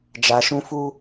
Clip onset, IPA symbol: d͡ʒ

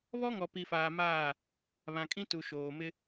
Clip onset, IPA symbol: β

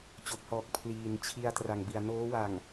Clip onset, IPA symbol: t͡ɕ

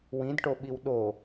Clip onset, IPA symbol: w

